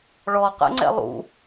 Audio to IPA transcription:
ɭɔqɛ̰ŋ͡ǀɛ̰ lˠṵ

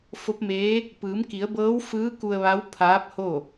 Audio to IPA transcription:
fo˧˥p̚meː˧˥ | pɯː˩˧mki˩˧ə̯bɤː˧˥w fɯː˧˥ ku˧ə̯ʋa˧˥w pʰaː˧˥p̚ho˥˨

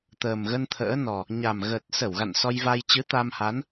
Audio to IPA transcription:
t̪əː˨˩mɣə˧nt̪ʰə̰ː˧˥nɔ˨˩ | ɲa˨˩mɣəː˨˩t̚sə˧˩wɣa̰˧˨n sɔ˧jva˧j t͡ɕɨ˨˦t̪a˧mha˨˦n

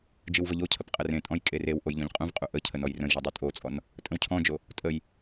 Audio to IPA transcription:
d͡ʒɯwvəʎocʰəp qʼərẽtʼɔ̃j kʼerewʔoj ʎɔ̃ʎqʼũvqʼu ʔə cʰənɔjrə̃jʒɔ dˤutʼot͡sʼɔn | tʼə̃wcʰɔ̃d͡ʒo | tʼəj

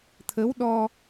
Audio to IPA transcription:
t̪ʰə˧˥wɗɔ˧

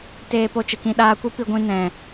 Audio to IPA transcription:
teː˧po˧t͡ʃə˨kĩ˧ ɗaː˧kʷi˦ pi˧ɡʷĩ˧ nɛ̃˨

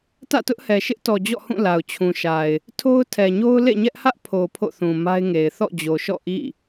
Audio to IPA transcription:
tä̰˦˨tʊ˦ʔhɛ˨ ʃɪ˦ʔtɔ˨d͡ʑɔ̰˦˨hũ˦˨ la˨ʊ̯t͡ɕʰũ˨ʃa˨ɪ̯ | tʰo˦ʊ̯tʰɛ˨ɲo˦ʊ̯ lḛ˦˨ɲɛ˦ʔhä˦ʔ pʰo˨ pʰo̰˦˨θũ˨ ma˦ɪ̯ŋe˨ɪ̯ θɔ̰˦˨d͡ʑo˨ʃɔ̰˦˨ ʔḭ˦˨

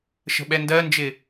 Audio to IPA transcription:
ʃə̤ɓɛndɜnd͡ʒɪ

